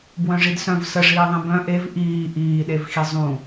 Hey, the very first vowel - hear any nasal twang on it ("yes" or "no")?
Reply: yes